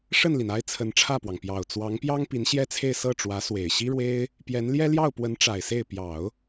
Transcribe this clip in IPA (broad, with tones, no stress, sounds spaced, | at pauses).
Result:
ʂ ə˥˩ n l i˩ n a˥ ɪ̯ t͡sʰ ə˧˥ n ʈ͡ʂʰ ä˥˩ p w ɑ˩ ŋ p j ɑ˨˩ ʊ̯ t͡s w ɑ˧˥ ŋ p j ɑ˥ ŋ p i˧˥ n ɕ j ɛ˥ t͡sʰ e˥˧ ɪ̯ s ɤ˥˩ ʈ͡ʂ w ä˧˥ s w e˨˩ ɪ̯ ɕ i˥ ɻ w e˥ ɪ̯ | p j ɛ˧˥ n l j ɛ˥ l j ɑ˥˩ ʊ̯ p w ə˧˥ n ʈ͡ʂ a˨˩ ɪ̯ s e˥˩ ɪ̯ p j ɑ˨˩˦ ʊ̯